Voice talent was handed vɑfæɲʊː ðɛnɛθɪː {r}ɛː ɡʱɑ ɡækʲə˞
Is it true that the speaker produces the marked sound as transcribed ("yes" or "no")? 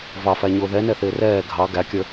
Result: yes